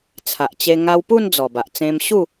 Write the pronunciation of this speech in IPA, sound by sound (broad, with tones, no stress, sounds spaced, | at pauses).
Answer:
t͡sʰ a˨ ʔ t͡ɕ e˧ ŋ a˧ w p u˥˧ n d͡z ɔ˨˩ b a˨ ʔ t͡s ẽ˧ m ɕ u˥˧